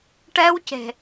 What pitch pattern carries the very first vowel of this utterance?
high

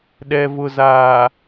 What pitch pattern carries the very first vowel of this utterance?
low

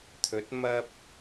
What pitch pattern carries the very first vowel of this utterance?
rising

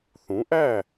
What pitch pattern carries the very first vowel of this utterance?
rising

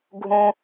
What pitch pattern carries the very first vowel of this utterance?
high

